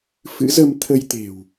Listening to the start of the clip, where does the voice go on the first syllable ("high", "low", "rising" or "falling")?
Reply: rising